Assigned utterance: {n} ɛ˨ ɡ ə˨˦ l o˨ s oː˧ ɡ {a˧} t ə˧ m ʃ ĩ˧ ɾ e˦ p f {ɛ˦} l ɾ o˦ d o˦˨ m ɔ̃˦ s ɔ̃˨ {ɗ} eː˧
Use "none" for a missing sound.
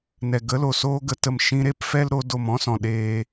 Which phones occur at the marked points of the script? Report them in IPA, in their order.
n, ə˧, ɛ˦, ɗ

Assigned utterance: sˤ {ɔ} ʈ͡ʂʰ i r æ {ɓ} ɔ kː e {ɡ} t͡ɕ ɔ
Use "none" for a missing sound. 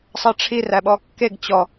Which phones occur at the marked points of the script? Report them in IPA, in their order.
ɑ, ɓ, ɡ

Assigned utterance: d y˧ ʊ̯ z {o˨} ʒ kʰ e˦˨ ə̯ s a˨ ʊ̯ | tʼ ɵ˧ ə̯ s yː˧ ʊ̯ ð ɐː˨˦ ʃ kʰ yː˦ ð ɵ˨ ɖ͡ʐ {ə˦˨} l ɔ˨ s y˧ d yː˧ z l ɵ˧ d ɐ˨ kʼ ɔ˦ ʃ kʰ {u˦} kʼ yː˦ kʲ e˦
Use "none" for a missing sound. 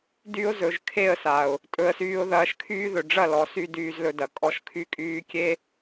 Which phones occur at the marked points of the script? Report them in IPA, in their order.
ɵ˨, ɐ˦˨, y˦

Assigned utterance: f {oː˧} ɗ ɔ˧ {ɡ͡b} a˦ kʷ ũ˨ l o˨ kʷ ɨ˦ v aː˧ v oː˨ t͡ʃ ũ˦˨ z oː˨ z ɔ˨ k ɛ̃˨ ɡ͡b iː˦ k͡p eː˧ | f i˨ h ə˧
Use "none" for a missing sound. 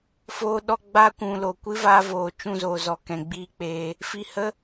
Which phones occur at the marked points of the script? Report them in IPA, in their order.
oː˧, ɡ͡b

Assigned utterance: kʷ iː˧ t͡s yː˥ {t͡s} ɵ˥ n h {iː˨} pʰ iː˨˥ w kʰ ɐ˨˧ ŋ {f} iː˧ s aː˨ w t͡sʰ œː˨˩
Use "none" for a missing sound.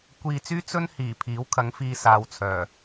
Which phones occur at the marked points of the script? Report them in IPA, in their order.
t͡s, iː˨˩, f

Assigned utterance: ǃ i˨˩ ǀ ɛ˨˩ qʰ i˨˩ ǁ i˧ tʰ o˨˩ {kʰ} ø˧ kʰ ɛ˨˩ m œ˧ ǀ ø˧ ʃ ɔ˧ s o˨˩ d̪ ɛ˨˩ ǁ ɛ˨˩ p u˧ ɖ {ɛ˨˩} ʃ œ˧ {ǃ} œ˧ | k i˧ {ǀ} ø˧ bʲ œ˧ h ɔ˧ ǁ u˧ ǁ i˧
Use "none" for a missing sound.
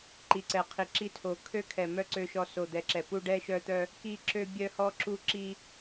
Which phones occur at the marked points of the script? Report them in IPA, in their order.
kʰ, ɛ˧, t̪, ǁ

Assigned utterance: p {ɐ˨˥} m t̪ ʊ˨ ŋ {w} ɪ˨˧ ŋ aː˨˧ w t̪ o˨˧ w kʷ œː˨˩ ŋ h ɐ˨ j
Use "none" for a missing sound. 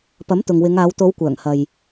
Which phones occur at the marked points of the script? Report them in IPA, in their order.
ɐ˨˥, w

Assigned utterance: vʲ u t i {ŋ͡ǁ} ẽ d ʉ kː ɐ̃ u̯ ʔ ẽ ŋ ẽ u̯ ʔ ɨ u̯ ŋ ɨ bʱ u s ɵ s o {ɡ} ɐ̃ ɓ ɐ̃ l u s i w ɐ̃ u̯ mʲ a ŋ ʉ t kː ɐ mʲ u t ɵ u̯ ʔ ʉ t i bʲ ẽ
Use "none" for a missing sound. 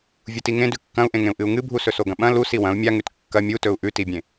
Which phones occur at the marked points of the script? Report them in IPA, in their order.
ŋ, ɡ

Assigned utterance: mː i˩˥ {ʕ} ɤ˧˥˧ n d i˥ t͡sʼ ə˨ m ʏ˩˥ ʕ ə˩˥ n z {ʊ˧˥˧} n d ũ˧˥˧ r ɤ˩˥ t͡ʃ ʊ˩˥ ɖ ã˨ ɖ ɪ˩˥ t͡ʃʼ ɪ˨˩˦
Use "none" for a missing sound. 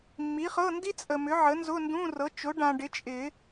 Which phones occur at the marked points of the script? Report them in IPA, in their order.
χ, ʊ˧˥˧

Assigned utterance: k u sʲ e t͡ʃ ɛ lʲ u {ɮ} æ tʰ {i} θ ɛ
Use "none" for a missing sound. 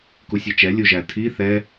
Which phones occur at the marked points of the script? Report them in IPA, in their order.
ʒ, i

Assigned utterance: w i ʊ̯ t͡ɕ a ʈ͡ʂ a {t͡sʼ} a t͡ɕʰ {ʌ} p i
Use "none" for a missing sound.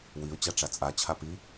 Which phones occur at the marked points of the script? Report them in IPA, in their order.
t͡sʼ, a

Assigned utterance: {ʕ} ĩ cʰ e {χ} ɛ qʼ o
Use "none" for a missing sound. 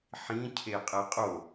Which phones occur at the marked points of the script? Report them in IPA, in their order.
ħ, qʼ

